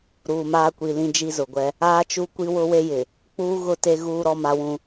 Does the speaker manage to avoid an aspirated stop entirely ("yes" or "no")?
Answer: yes